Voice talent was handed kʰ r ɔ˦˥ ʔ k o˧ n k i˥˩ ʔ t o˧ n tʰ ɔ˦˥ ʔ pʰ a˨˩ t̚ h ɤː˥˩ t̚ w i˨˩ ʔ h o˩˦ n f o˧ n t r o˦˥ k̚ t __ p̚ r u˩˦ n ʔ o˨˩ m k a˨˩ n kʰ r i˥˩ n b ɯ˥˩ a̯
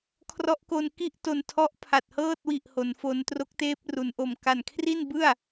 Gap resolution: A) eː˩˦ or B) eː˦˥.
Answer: B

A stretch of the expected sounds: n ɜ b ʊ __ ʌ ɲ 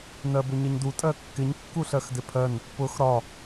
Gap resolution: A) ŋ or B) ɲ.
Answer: B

